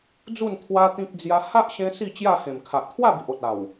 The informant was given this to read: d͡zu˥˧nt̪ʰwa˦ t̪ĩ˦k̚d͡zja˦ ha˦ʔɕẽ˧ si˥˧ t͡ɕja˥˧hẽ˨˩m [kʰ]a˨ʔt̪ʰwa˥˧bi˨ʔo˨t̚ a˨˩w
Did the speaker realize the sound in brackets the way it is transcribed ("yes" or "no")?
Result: yes